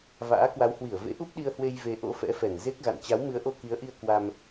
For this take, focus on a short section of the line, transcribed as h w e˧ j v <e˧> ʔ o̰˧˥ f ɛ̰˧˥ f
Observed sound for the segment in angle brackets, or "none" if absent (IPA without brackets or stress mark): e˧